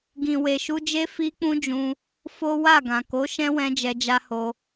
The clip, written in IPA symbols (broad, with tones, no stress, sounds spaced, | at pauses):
ɡ ĩ˨ w e˨ ʃ u˧ d͡ʒ e˦ f i˦ k͡p ũ˦ d͡ʒ ũ˧ | f o˦ w a˦˨ ɡ ã˨ k o˨˦ ʃ ɛ̃˦ w ɛ̃˧ d͡ʒ ɛ˧ d͡ʒ a˦ h o˧